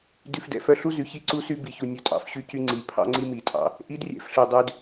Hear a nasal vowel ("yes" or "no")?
no